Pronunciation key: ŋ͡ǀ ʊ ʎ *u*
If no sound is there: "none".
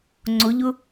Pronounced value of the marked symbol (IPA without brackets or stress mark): ʊ